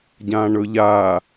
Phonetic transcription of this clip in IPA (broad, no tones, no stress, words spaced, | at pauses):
ɟãɳɵʎa